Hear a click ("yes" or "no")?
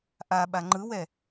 yes